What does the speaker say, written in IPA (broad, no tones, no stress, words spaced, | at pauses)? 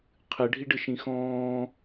qʰɨ ɖʱiɖɨʃĩxɔ̃ː